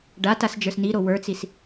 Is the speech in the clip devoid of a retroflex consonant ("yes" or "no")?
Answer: no